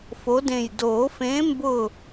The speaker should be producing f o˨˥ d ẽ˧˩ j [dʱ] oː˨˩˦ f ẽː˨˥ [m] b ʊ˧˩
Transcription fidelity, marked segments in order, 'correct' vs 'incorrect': incorrect: d, correct

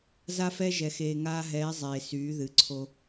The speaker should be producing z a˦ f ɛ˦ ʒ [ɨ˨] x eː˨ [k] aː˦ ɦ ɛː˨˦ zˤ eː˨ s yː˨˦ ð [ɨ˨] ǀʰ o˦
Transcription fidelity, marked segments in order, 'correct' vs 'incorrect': incorrect: ɛ˨, incorrect: ŋ, correct

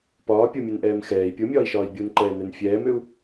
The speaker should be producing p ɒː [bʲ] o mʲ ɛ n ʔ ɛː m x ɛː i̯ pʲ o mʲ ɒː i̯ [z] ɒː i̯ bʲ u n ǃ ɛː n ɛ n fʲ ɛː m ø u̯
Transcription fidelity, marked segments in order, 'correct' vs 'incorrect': incorrect: pʲ, incorrect: ʃ

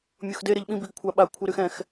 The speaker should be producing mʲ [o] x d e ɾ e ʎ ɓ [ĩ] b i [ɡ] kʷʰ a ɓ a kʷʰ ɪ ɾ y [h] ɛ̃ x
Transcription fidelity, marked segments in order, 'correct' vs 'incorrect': correct, correct, correct, incorrect: x

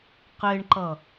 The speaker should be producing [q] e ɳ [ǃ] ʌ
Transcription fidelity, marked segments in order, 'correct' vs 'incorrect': correct, correct

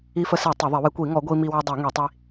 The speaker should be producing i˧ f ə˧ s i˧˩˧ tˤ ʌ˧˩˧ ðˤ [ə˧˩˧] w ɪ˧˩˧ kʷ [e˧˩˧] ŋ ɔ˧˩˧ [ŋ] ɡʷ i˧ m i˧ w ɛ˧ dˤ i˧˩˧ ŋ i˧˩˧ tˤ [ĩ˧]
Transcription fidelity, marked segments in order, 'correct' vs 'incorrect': incorrect: ɪ˧˩˧, incorrect: i˧˩˧, incorrect: none, incorrect: i˧

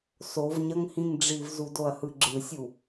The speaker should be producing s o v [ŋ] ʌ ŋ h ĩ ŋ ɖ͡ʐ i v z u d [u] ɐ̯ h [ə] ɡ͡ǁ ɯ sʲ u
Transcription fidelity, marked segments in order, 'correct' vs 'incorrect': incorrect: ɲ, incorrect: o, incorrect: ɯ

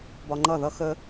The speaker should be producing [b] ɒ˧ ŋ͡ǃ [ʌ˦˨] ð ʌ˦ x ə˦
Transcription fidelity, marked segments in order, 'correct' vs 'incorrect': correct, correct

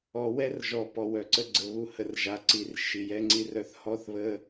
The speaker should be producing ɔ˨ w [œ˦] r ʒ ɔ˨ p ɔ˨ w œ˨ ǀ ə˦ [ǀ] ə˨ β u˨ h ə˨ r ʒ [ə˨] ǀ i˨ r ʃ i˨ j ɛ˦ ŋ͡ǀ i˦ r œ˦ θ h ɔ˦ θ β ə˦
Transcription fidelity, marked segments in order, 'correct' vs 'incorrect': incorrect: ɛ˦, incorrect: ɡ͡ǀ, incorrect: a˨

